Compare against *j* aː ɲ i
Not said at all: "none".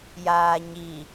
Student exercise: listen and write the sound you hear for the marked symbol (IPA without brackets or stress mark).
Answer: j